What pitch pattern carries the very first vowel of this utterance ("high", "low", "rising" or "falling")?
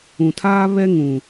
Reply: low